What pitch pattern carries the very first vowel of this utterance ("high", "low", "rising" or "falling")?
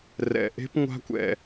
low